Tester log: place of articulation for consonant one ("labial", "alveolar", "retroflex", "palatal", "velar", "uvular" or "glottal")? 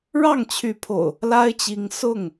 retroflex